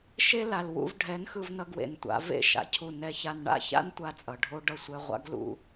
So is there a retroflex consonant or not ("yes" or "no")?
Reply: yes